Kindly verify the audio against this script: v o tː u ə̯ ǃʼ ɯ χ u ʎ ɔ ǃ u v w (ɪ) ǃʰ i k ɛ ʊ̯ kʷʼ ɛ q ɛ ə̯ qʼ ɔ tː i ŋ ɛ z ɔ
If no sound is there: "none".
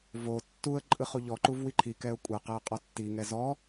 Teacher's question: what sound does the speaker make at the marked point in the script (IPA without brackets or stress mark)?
i